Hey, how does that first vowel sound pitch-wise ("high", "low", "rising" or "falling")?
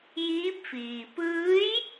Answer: rising